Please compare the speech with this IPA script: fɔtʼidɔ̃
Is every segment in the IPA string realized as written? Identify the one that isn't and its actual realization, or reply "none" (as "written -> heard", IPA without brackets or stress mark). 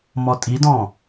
f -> m